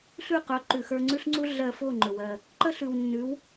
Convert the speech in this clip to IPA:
ɬ ʉ˥˩ q ɵ˩˥ ǃ ʉ˩ x ə˞˧ ŋ͡ǀ ʉ˥ ɬ ŋ͡ǀ u˥ ɮ ɜ˧ f o˥˩ ŋ͡ǃ ɵ˩ w ɜ˥˩ | ǃ ə˥ ɬ ʉ˩ w nː ʉ˩˥ w

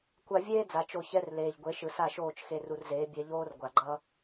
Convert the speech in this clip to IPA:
kʷ a˧ vʲ eː˦ d͡z a˨ t͡ʃ o˧ ç ɛ˦ r l eː˨ ʎ ɡʷ e˨˦ ʃ ɯ˨ s a˦˨ ʃ oː˦˨ t͡ʃ x e˧ r u˧ r z eː˨˦ bʲ ɛ˧ ʎ oː˦ r ɡʷ a˨ ɡ͡ǃ ʌ˦

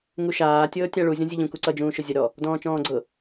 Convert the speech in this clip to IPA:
ŋ u ʃ aː tʲ ɤː tʲ a ɭ u zʲ ɔ̃ zʲ ʊ ʎ ũ k u ǀ ʌ d͡ʒ ũː ʃ ʊ zʲ ə ɾ ɔ | d ɔ̃ː t͡ʃ ɔ̃ː ɡ͡ǀ ɤ

